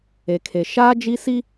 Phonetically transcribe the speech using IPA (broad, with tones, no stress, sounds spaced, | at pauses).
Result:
e˨ kʰ e˨ ʃ aː˦ d͡ʒ i˦ s i˦